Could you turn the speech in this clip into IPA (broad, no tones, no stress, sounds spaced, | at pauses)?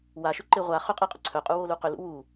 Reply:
w a ʃ ʏ ǃ e ʁʷ a χ ʏ qʼ e qʼ ʏ ǀʰ œ qʼ u w o l u q ʏ l ṵ w u